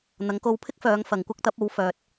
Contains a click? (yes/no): no